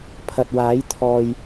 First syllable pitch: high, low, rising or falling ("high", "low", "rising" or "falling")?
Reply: low